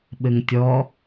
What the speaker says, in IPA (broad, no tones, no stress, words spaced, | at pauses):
ɓɘŋtʲɔ